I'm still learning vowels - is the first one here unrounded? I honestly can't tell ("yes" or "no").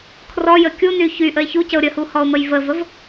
no